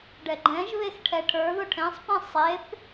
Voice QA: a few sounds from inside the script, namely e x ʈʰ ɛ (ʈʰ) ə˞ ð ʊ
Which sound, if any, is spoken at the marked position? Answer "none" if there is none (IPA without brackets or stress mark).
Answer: ʈʰ